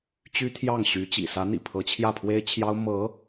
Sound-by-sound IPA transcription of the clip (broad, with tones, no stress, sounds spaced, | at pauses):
t͡ɕ y˥ t̪ʰ j ɑ˥˩ ŋ ɕ y˧˥ t͡ɕ ḭ˨˩ s ä˧˥ n̪ ḭ˨˩ pʰ ɤ˧˥ t͡ɕʰ j ä˥˩ pʰ w e˥ ɪ̯ t͡ɕʰ j ɑ˥ ʊ̯ m ɤ˧˥